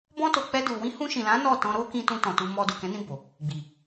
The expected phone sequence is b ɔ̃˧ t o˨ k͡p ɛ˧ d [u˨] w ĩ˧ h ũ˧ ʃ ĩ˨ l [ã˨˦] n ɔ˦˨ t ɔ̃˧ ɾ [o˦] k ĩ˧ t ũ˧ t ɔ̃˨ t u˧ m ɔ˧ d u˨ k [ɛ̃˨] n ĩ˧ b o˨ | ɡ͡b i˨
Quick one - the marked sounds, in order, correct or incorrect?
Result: correct, correct, correct, incorrect

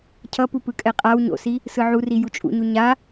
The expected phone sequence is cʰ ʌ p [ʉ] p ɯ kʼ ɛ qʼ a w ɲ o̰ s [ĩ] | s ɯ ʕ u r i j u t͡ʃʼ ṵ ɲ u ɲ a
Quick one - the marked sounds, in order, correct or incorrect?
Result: incorrect, incorrect

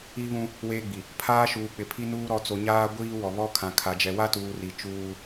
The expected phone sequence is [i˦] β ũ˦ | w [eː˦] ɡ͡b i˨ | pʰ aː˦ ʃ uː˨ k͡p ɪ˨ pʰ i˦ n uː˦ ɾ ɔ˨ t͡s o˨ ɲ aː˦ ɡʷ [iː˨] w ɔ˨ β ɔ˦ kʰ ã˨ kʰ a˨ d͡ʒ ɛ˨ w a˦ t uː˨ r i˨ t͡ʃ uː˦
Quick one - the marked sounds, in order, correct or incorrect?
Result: correct, correct, incorrect

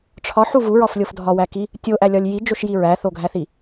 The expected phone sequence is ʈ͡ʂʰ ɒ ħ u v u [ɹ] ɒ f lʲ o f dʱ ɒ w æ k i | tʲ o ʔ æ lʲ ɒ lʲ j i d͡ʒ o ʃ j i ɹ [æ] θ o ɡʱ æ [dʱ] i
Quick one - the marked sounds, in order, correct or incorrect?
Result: correct, correct, incorrect

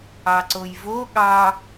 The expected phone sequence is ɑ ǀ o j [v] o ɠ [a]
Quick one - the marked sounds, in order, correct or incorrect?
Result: correct, incorrect

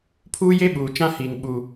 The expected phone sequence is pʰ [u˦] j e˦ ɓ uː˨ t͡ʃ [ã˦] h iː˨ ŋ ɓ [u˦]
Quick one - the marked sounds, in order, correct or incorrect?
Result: incorrect, correct, incorrect

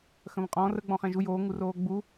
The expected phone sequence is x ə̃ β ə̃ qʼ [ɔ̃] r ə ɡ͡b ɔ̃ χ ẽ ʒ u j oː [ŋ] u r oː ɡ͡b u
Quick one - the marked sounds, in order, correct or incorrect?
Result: incorrect, correct

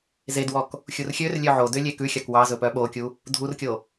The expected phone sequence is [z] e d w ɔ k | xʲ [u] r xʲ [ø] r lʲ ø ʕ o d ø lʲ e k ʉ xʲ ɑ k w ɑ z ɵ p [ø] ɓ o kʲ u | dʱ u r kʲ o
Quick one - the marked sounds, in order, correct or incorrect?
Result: correct, correct, correct, incorrect

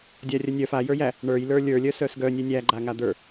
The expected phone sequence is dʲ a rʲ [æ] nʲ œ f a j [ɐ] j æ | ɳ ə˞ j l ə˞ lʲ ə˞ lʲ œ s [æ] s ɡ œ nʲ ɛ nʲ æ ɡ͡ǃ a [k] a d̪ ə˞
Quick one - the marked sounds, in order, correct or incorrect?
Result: incorrect, incorrect, incorrect, incorrect

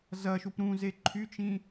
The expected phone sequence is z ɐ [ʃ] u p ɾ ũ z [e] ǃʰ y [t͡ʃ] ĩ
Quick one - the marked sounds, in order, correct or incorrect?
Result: correct, correct, correct

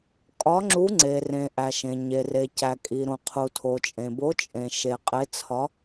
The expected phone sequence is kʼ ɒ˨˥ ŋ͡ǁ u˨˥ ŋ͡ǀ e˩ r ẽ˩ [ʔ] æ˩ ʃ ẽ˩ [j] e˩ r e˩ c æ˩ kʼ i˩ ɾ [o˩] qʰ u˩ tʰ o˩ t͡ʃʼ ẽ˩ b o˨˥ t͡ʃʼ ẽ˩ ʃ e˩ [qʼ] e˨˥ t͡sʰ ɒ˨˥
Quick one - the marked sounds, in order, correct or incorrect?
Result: correct, incorrect, incorrect, correct

